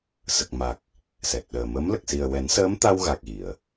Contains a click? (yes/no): no